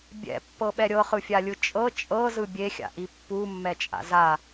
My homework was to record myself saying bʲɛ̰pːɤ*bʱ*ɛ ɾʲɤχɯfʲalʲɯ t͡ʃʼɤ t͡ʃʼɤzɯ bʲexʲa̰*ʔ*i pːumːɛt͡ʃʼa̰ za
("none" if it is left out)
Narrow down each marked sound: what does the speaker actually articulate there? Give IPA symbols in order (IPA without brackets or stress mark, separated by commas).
ɓ, ʔ